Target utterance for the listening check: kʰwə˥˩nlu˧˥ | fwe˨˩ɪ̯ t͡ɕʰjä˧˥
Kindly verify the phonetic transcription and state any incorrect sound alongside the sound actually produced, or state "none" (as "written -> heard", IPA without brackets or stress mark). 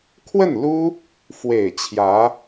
u˧˥ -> u˥